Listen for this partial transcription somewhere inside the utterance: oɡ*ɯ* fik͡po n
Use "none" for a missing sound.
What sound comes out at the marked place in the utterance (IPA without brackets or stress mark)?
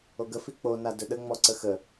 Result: ə